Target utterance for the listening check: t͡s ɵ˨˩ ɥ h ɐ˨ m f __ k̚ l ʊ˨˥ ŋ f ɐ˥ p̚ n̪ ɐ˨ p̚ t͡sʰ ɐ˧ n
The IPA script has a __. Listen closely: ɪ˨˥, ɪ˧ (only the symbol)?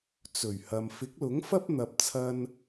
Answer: ɪ˨˥